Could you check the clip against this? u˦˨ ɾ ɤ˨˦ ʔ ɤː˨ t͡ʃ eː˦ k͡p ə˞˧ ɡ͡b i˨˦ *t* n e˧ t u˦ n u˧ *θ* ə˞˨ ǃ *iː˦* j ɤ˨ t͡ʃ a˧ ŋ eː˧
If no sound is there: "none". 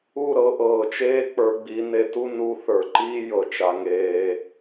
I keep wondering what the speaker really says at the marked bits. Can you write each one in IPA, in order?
none, θ, iː˦

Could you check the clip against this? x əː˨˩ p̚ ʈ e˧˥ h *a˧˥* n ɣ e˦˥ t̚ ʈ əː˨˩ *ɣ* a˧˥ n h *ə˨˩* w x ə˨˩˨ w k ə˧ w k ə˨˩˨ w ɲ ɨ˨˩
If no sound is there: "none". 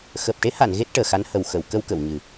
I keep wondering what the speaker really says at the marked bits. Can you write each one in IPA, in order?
a˨˩˨, x, ə˨˩

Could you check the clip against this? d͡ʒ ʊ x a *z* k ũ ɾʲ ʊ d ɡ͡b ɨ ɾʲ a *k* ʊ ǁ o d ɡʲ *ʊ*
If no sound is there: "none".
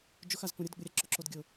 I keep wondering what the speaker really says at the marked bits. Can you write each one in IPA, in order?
z, ǁ, ʊ

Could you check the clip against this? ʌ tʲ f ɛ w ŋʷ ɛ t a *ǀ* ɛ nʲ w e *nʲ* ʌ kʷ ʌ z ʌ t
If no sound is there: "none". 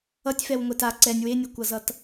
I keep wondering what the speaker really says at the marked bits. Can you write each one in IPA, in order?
ǀ, nʲ

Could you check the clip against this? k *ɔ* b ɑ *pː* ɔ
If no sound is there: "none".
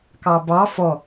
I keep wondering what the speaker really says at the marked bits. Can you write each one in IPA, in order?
ɑ, f

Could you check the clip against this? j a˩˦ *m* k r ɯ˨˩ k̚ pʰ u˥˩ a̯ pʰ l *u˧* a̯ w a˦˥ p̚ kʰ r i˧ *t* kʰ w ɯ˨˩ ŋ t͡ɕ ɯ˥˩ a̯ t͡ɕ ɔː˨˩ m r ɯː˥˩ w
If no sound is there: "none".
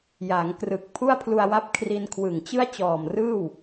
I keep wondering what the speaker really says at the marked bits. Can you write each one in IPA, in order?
ŋ, u˧, n

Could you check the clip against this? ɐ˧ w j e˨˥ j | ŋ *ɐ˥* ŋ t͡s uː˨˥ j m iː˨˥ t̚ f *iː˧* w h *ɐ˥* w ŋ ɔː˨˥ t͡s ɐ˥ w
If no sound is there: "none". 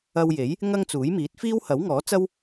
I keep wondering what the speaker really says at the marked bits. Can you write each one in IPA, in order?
ɐ˥, iː˥, ɐ˨˥

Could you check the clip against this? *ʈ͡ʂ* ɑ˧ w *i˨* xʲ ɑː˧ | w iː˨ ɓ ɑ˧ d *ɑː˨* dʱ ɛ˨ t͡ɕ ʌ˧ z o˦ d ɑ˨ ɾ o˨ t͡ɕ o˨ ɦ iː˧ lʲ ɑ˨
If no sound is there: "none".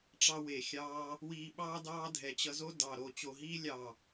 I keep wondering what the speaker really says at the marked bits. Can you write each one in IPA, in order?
ʈ͡ʂ, e˨, ɑː˧

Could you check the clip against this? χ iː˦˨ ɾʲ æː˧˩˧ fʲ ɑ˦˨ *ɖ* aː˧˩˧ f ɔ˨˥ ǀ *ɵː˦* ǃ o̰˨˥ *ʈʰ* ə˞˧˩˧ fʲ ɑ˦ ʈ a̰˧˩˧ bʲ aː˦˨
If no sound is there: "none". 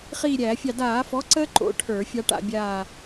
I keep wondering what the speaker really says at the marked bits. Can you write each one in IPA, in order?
d, əː˦, ʈʰ

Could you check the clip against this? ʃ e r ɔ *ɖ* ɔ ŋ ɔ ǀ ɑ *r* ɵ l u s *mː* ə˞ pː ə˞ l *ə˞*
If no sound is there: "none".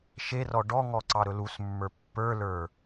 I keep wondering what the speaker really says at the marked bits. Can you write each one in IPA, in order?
ɖ, ɾ, mː, ə˞

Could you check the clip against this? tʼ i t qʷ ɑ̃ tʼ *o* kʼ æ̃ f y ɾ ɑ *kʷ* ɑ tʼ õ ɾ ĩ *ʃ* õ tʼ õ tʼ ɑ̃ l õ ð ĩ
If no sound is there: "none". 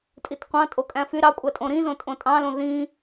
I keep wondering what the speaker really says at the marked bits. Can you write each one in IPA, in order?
o, kʷʼ, z

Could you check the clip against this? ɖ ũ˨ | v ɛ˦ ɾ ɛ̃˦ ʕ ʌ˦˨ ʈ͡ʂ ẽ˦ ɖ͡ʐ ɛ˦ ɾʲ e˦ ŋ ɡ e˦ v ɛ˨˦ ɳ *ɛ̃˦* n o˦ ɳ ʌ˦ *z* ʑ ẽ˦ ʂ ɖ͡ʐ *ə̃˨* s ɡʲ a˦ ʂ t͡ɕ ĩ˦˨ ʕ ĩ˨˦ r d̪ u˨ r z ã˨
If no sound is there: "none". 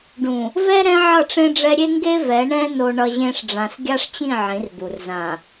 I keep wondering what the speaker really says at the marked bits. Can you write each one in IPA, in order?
ɛ̃˦, none, ã˨

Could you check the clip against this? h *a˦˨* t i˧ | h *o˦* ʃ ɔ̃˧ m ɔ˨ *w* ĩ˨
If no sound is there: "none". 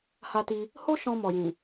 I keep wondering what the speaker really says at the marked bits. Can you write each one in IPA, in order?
a˧, o˦, j

